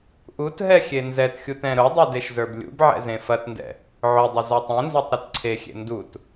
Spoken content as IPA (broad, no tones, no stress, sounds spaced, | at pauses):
ʔ u t ɦ ɛ xʲ e n z ɛ t xʲ u t ɛ̃ ɾ ʊ dˤ u d e ʃ z ə˞ b lʲ ṵ b ʕ ɛ̰ z ẽ f ɐ t n d ɛ̰ | ʕ ʊ dˤ ʊ z ɒ tˤ ẽ n z ɒ tˤ ɾ ʊ t ǀʰ e xʲ ḛ n d u t